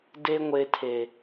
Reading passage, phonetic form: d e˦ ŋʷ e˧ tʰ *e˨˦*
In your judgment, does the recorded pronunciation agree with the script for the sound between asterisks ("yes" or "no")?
no